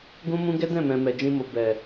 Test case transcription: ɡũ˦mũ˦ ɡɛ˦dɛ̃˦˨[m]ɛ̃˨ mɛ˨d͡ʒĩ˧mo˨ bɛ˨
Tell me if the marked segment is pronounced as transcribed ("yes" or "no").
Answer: yes